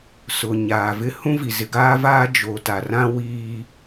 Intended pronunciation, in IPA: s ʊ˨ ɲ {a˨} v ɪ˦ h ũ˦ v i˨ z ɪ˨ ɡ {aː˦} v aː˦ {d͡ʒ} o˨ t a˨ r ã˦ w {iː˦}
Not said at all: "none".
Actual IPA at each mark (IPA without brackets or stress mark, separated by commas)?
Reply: aː˨, aː˦, d͡ʒ, iː˦